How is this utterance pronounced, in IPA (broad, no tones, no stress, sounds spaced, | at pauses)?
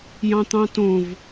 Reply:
j ɑ̃ t̪ ɑ̃ t õ v